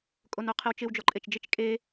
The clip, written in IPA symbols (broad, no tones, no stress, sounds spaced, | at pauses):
kʼ o n o qʰ ɪ w t͡ʃ ɪ w d͡ʒ ɔ ǃʼ e t͡ʃ d͡ʒ ɪ t͡ʃ kʼ e